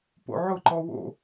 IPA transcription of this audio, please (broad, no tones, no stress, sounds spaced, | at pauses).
p o̰ ʕ ʊ ǃ ɔ w o̰